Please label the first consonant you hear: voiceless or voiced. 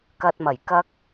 voiceless